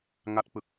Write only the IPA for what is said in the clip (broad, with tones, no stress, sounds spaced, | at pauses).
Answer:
ŋ a˦˥ t̚ p ɯ˨˩ k̚